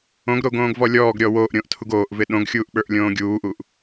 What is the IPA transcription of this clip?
õ ɡ ɾ o ɡ õː ɡ v ɔ lʲ ɔː ɡ ɾʲ ɔ w oː ʔ ɾʲ õː ʔ tʰ u ɡ oː ʔ v ɪ ɗ õ ɡ xʲ uː ʔ ɓ ə˞ ʔ lʲ õː ɡʲ uː ʔ u ʔ

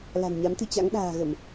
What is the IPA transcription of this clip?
l a̤˨˩ n ɲ a˨˦ m t̪ ɨ˧ t͡ɕ a̰˧˥ ŋ ɗ a̤ː˨˩ ɣ ə˧˩˨ m

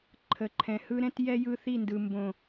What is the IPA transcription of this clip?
ǃʰ ə˨ ǃʰ ɛ̃˨ h ɯ˦ ɾ ɛ̃˦ t j ɛ˦ j ɯ˦ θ i˦˨ n d ɯ˨ m b õ˨

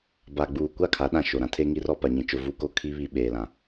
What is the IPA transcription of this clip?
b a˨ ɡ͡b uː˨ kʷ a˦˨ kʰ a˨˦ ɗ ã˨ ʃ o˨ ɾ ã˦ tʰ e˦ ŋ i˦ r ɔ˦˨ p a˨ ɲ ĩ˨ t͡ʃ ʊ˦ v u˦ k o˦ kʰ i˦ β i˦ ɓ eː˨ l ã˨

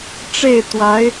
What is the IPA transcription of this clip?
ʈ͡ʂ e˥˩ ɪ̯ t̪ w a˧˥ ɪ̯

